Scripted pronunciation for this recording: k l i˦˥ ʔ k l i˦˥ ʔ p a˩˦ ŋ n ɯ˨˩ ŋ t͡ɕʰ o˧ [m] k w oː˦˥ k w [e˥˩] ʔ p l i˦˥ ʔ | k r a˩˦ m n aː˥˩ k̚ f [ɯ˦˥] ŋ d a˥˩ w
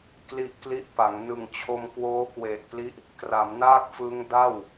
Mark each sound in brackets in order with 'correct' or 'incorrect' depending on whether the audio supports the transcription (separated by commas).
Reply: correct, incorrect, correct